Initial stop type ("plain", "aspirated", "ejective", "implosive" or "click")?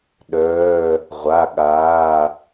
implosive